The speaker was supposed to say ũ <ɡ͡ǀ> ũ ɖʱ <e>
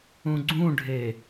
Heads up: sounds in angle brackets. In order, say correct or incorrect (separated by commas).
correct, correct